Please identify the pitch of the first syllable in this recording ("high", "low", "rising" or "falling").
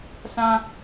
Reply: high